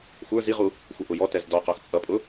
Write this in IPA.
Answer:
xʷ ə˞ z i ʁ u | xʷ ɪ ʔ ʊ j ɔ t ɛ z d ɔ q ɔ x t͡sʼ ʌ pʼ ʊ

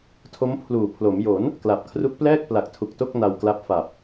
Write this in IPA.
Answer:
tʰ o˦˥ m pʰ l uː˨˩ pʰ l o˩˦ m j o˩˦ n | k l a˨˩ p̚ kʰ r u˦˥ k̚ p l ɛː˥˩ k̚ p l a˨˩ k̚ tʰ u˨˩ k̚ t o˥˩ k̚ n a˧ w k l a˦˥ p̚ f a˨˩ p̚

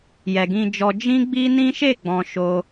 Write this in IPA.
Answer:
j ɛ˨ ɡ ĩ˧ d͡ʒ ɔ˧ d͡ʒ ĩ˦ ɡ͡b i˦ n ĩ˦ ʃ e˦˨ ɡ͡b ɔ̃˨ ʃ o˧

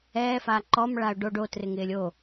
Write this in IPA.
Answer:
ɛː f aː ǃ ɔ m ɭ a ʊ̯ ɖ o ɖ o t r ɪ ŋ ɪː lʲ o

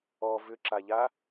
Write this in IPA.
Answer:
ɔ v ʏ ǁ a ʎ a

